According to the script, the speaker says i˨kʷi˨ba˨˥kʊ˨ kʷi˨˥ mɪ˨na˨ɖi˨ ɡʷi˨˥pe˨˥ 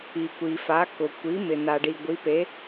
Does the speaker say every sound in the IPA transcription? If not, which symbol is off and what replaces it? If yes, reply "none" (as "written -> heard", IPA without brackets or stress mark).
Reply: b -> f